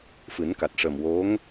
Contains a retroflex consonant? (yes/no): yes